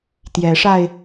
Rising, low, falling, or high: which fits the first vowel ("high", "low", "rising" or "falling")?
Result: rising